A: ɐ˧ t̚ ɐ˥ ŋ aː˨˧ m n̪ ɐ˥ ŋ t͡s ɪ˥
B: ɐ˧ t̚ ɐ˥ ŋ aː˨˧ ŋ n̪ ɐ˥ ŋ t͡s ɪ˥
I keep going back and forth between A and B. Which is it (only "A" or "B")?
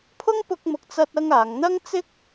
B